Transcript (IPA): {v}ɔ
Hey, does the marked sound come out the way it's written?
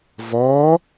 yes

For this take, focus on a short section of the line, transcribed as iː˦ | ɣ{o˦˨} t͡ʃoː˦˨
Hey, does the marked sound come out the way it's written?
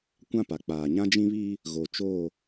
no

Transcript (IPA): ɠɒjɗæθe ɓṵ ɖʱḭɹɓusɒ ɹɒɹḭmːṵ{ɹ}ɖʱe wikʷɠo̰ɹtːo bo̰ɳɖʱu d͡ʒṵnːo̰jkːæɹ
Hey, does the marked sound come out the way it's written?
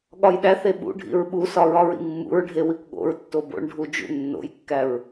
yes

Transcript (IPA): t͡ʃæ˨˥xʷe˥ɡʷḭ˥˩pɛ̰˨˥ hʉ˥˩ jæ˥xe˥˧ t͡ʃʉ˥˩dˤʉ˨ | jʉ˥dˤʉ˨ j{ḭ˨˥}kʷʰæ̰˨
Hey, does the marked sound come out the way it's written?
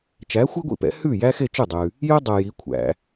no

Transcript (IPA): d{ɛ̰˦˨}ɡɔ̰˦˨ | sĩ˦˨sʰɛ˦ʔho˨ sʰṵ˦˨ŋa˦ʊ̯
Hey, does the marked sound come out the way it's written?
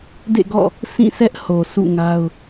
no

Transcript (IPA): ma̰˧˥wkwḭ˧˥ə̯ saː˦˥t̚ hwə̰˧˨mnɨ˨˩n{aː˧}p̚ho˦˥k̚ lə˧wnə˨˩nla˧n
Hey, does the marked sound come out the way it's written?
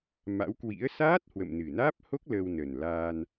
no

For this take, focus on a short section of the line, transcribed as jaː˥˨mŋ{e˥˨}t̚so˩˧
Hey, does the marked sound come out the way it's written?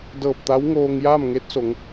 no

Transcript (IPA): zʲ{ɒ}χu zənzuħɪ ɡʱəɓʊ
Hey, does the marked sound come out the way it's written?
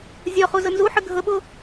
yes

